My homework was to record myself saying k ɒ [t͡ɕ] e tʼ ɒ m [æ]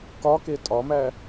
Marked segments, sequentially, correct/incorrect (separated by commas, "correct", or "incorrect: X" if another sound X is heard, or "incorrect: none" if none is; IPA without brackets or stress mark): incorrect: k, correct